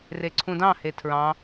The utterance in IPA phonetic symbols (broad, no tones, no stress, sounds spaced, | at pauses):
r e ǀʰ ũ d ɑ̃ h e tʰ ɹ ɑ̃